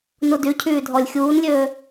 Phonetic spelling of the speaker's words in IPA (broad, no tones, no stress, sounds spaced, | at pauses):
n u d y cʰ yː dʱ ɔ lʲ xʲ uː n lʲ øː